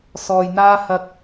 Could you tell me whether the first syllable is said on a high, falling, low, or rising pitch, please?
low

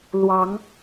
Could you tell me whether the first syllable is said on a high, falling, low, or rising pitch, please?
rising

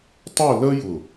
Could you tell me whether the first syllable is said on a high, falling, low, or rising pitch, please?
falling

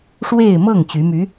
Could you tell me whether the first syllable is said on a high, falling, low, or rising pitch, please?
falling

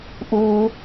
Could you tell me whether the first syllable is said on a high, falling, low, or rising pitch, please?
low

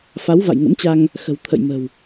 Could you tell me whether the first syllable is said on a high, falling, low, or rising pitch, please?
rising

